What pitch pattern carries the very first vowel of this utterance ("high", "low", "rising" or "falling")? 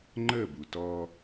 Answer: falling